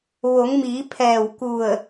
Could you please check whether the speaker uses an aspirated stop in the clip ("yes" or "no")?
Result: yes